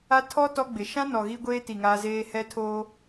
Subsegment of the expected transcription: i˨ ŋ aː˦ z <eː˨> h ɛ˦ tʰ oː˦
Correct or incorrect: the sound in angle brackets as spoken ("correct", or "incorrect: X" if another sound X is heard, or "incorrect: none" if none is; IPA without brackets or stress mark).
incorrect: eː˦